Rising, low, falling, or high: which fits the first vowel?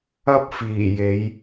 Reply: high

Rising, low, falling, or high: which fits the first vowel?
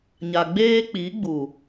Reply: low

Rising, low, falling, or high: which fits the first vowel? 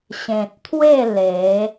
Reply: low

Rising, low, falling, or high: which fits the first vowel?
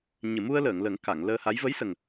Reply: low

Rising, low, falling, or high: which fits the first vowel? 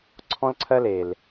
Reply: high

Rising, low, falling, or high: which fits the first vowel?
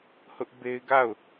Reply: high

